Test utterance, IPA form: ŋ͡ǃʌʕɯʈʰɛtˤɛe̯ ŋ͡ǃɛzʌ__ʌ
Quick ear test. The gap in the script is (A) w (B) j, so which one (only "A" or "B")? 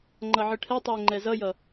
B